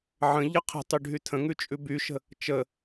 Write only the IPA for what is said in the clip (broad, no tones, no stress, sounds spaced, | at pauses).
ʕ ə̃ ʎ ə qʰ ə̤ tˤ y ɖʱ y tʰ ə̃ ŋ ʉ t͡ʃʼ ʉ b y ʃ ə̤ | t͡ʃ ə